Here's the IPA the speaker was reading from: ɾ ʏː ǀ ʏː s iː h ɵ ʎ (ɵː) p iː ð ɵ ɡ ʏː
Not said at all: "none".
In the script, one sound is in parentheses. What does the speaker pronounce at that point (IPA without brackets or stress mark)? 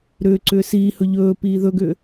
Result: ɵː